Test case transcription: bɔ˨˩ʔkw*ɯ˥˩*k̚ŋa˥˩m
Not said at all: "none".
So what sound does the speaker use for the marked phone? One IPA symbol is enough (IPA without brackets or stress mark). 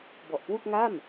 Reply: u˥˩